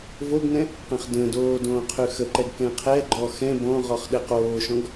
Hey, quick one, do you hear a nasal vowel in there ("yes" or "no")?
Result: yes